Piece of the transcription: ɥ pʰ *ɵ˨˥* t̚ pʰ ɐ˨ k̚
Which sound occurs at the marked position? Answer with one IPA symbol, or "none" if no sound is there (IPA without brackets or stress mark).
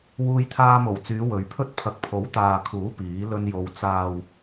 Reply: ɵ˥